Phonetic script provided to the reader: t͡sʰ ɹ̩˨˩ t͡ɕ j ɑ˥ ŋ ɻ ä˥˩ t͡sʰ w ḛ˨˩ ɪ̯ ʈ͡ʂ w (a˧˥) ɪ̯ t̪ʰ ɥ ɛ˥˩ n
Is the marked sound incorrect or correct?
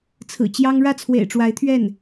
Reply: correct